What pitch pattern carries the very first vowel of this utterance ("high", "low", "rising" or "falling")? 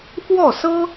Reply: falling